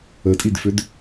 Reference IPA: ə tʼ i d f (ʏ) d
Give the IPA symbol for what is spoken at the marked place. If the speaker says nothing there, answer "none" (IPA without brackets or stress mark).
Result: ʏ